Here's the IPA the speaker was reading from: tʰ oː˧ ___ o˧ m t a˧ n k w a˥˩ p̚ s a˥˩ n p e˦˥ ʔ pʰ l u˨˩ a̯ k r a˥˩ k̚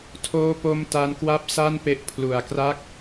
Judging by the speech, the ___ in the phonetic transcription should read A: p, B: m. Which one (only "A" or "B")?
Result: A